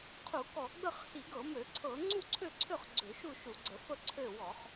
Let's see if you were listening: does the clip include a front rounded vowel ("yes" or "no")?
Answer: yes